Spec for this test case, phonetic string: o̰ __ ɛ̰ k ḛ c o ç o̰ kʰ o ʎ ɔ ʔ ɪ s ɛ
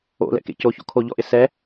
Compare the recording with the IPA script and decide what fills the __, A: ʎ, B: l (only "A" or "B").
B